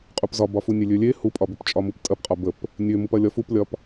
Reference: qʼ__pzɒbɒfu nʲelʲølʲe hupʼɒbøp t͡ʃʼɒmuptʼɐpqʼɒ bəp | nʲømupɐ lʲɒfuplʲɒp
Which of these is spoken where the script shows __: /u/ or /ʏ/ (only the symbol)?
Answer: u